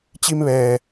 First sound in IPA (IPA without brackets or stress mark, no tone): t͡ɕ